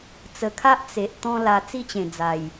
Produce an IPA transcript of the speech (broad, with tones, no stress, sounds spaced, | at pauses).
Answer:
t͡s ə˨˩ kʰ a˦ ʔ t͡s e˨ ʔ t̪ ɔ̃˦ l a˧ t͡s i˥˧ t͡ɕ ẽ˨˩ d͡z a˨˩ j